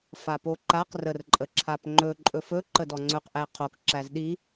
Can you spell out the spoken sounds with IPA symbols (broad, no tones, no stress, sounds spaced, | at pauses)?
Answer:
f a p o ǃ a q r ə r ǃʼ ə ǁʰ a p ŋ͡ǃ ɵ ǃʼ ɵ f ɵ ǃ ə d ɔ ŋ͡ǀ ɵ q ʔ æ qʰ o k ǁ æ z ɗ i